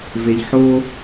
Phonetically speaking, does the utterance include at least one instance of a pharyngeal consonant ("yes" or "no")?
yes